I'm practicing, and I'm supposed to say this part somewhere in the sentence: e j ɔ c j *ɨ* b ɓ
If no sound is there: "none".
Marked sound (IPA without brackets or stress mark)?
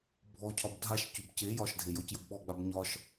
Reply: ə